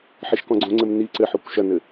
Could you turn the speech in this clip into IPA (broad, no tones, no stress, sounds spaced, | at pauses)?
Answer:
ħ i ʃ k ɔ̃ ɡ͡ǀ õ ŋ͡ǀ ɘ m n i ǀ ɘ ħ o kʷ ʃ ɐ n ɘ